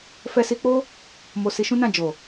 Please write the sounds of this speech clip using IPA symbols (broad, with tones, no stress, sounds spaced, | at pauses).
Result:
f ɛ˧ s i˧ k͡p o˦ | m o˧ s i˧ ʃ ũ˦ n ã˦˨ d͡ʒ o˨